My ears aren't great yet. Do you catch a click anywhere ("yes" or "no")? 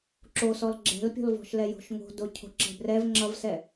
yes